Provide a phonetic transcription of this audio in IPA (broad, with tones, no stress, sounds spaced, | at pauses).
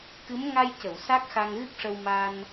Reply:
k ɨ˧˥ m ŋ a˧ j c ə˨˩˨ w s a˦˥ k̚ x a˧ ŋ ɣ ɨ˦˥ k̚ ʂ ə˧ w m a˧ n